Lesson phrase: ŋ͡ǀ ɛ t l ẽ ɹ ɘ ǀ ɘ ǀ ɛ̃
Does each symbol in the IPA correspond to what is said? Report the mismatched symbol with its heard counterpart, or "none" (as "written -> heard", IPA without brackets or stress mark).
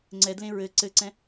t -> d